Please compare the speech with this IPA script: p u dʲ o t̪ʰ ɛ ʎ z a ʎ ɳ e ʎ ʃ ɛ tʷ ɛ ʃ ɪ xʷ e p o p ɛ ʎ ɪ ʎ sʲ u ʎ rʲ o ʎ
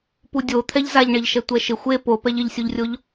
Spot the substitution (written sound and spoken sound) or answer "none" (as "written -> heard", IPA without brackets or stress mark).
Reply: none